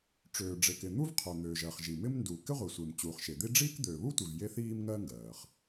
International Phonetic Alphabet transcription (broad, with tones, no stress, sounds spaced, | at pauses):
ʈ͡ʂ øː˩ ɖ͡ʐ e˩ k ɪ˩ n̪ u˥ v qʰ ø˩ n̪ øː˩ ʒ ɜ˩ χ ʒ i˩ m ɪ˥ m n d uː˩ k ɪ˥ ʁʷ i˩ sʷ ɪː˩ m t͡ɕ uː˩ χ ʃ e˩ d̪ i˥ ɖ͡ʐ iː˥ k d̪ øː˩ β u˥ tʷ i˩ v j e˥ θ iː˥ m ŋ ɜː˥ ŋ ɡ ɜː˩ χ